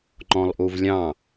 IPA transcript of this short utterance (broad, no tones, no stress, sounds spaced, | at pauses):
ŋ͡ǃ ɔ̃ lˠ ʔ u v lʲ ɑ̃